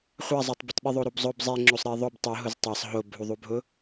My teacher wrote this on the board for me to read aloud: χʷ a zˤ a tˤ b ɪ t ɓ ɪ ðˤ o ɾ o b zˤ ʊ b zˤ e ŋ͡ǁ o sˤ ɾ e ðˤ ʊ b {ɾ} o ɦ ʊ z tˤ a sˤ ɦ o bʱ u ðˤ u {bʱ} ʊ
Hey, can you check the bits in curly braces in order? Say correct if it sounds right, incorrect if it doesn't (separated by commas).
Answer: incorrect, correct